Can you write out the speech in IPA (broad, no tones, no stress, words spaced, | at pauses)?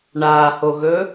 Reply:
ɳaːhoɣɵː